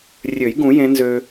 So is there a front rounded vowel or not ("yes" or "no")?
yes